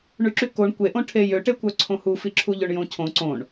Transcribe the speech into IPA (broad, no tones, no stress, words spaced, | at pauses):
ɳyǁykoɳ kʷeʔõ ʈʰejøʈekʷœ ǀʰõhufi ǁʰuʎøɳjõcʰõ ǀõɳ